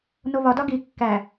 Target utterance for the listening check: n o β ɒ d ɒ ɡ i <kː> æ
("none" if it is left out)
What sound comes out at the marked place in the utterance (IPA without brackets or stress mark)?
kː